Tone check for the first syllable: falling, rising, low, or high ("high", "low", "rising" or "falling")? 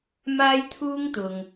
high